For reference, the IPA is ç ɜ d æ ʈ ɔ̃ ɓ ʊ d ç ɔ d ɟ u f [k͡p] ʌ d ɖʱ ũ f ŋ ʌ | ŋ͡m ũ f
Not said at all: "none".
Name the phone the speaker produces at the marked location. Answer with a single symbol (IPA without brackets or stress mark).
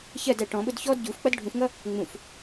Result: k͡p